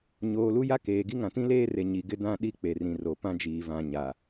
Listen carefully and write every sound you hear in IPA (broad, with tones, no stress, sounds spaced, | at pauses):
ɲ oː˨ l u˦ j a˦ k eː˨ ɡ i˦ ŋ ã˨ t ĩ˦ l eː˦ r e˨ ɲ i˨ ɡ ɪ˦ d ã˦ ɗ i˦ k͡p e˨ r ĩ˨ r o˨ p ã˦ d͡ʒ iː˨ v ã˨ ɲ a˨